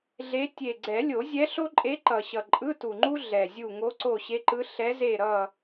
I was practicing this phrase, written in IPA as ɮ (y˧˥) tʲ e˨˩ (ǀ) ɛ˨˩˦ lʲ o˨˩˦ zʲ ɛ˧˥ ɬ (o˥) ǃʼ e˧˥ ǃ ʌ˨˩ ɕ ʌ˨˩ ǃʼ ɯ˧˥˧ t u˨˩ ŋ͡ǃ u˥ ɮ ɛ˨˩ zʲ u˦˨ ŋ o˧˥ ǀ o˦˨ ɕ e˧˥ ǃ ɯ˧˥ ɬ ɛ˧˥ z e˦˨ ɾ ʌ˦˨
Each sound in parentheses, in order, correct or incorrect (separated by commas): incorrect, incorrect, correct